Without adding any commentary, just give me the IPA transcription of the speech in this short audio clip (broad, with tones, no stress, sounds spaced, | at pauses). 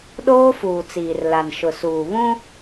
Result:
ɗ oː˦ f uː˨ t͡s iː˨ r l a˨ n ʃ ʊ˨ s uː˨ β ũ˦